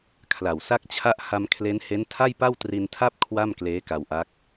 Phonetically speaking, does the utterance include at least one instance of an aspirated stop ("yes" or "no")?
yes